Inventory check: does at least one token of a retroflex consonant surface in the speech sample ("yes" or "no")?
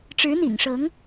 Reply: yes